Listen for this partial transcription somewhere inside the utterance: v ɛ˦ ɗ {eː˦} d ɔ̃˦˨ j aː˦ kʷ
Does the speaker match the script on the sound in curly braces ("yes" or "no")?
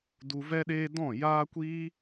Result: yes